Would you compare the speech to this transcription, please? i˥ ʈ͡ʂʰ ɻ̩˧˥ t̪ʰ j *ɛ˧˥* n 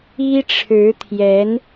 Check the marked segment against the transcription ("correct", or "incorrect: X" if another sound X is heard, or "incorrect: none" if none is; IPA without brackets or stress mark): correct